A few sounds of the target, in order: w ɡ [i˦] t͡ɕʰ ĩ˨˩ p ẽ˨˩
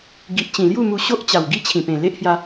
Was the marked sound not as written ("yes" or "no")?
no